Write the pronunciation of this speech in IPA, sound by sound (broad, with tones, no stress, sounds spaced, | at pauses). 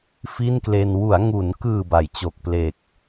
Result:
f i˥˩ n k l e˧ n w u˩˦ a̯ ŋ u˩˦ n k ɯː˨˩ b a˩˦ j t͡ɕ o˨˩ k̚ p l e˨˩ k̚